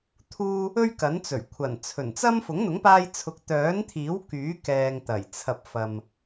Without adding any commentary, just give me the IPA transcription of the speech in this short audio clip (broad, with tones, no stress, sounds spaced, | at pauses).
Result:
t̪ʰ uː˥ | ɵ˥ ɥ k ɐ˨˥ n t͡s ɵ˨˩ ɥ kʷʰ ɐ˨˩ n t͡sʰ ɵ˨˩ n t͡s ɐ˥ m f ʊ˨˥ ŋ n̪ ʊ˨˥ ŋ p aː˧ j t͡sʰ ʊ˨˥ k̚ t̪ œː˨˥ n t̪ʰ iː˨˥ w k yː˨˥ k ɛː˨ ŋ t̪ ɐ˨˩ j t͡sʰ ɐ˧ p̚ f ɐ˨ m